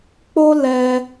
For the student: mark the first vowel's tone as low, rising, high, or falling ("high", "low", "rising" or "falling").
high